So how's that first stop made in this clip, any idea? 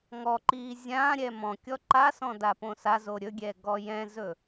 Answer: click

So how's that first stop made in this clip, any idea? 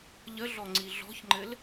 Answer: click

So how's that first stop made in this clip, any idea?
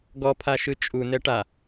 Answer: plain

